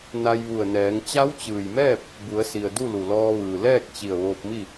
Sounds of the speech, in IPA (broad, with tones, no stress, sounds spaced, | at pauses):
n a˧ j ʋ u˧˩ ə̯ n ɛː˩˧ ŋ t͡ɕ a˧˥ w t͡ɕ ɯː˩ j m ɛː˥˨ p̚ | b u˩˧ ə̯ s i˩ ə̯ d u˥˨ l u˩ l ɔː˧ ʋ ɯː˩ l ɛː˥˨ k̚ t͡ɕ i˧˩ ə̯ ʋ oː˧ p̚ m i˥˨